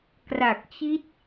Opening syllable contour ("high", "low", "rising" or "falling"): low